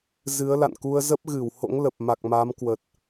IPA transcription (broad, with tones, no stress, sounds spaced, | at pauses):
z ɨ˨˦ ə̯ l a̰˧˨ n k u˧ ə̯ z ə˦˥ p̚ ɣ ɨ˧˩ w h o̰˧˥ ŋ l ə˨˩ p̚ m a˨˩ k̚ m a˨˦ m k w ə˨˩ t̚